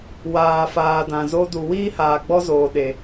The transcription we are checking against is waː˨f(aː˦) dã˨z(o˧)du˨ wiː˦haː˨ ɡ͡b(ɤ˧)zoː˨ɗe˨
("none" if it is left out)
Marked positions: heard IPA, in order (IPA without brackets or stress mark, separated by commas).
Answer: aː˨, o˧, ɔ˧